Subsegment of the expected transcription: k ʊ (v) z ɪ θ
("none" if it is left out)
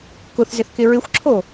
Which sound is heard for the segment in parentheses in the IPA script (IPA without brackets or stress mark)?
θ